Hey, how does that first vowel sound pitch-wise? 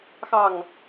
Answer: falling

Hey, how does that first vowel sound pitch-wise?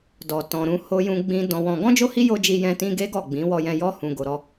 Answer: low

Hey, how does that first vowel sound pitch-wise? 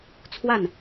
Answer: falling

